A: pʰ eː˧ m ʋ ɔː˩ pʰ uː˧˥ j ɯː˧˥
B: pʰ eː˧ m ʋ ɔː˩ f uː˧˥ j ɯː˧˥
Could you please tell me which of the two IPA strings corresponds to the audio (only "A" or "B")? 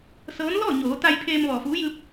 B